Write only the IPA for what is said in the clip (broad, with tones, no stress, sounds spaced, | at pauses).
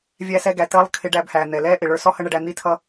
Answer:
vʲ æ˧ s ɛ˧ ɡ æ˩ t əː˧ lˠ kʰ ɪ˧ ɖ æ˧ b h æː˩ n̪ ɛ˩ l ɛː˥ ʔ ɪ˩ ɭ ə˞˧ s ɔ˥ h ə˥ ɳ ə˧ ɖ æ˧ n̪ i˥ tʰ ʌ˥